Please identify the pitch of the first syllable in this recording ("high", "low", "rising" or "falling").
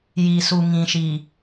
low